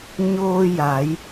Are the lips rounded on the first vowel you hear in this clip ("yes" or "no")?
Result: yes